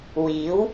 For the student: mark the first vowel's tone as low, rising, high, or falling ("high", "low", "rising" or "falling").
rising